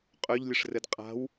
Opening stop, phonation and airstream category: ejective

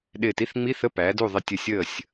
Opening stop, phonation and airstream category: implosive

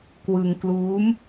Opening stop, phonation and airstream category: plain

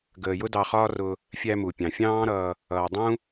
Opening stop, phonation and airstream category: plain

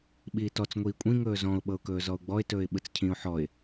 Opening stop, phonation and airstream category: implosive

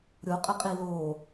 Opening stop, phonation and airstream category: ejective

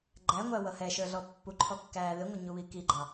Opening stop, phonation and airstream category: click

